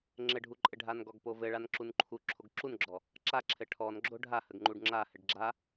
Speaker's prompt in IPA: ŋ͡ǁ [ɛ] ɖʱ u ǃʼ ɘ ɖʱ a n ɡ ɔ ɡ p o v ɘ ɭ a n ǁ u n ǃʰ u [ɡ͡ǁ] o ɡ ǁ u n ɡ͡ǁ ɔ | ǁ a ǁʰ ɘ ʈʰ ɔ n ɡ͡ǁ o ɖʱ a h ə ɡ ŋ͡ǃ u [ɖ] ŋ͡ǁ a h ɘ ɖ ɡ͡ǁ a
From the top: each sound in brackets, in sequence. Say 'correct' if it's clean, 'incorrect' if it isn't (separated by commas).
incorrect, incorrect, correct